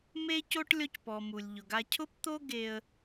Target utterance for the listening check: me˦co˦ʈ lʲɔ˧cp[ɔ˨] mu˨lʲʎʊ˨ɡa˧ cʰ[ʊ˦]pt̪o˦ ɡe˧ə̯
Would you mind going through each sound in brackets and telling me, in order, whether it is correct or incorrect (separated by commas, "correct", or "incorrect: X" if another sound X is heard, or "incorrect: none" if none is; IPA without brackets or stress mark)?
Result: correct, correct